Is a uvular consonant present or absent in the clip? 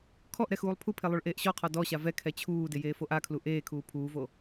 present